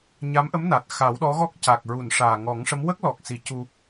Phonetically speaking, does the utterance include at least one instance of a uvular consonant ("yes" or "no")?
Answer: no